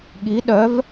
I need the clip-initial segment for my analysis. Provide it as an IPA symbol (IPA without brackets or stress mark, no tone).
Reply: ɠ